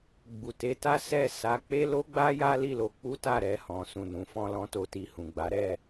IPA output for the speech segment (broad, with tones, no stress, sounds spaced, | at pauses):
ɡ͡b u˨ t e˨˦ t a˦ s ɛ˦˨ s a˨˦ k͡p e˦ l o˦ ɡ͡b a˦ j a˦ l i˦˨ l o˧ k͡p u˦ t a˦˨ ɾ ɛ˧ h ɔ̃˨ s ũ˨ n ũ˨ f ɔ̃˧ l ɔ̃˧ t o˧ t i˧ h ũ˨ ɡ͡b a˨˦ ɾ ɛ˦˨